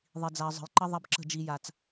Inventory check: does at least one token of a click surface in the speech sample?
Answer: yes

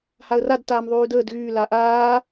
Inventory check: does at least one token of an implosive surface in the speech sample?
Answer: no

